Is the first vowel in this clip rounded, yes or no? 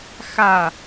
no